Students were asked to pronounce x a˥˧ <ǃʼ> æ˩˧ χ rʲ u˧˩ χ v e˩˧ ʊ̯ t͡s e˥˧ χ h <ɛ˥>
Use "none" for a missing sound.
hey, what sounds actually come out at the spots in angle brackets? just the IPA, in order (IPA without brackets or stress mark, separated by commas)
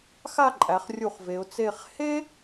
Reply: ǃʼ, e˥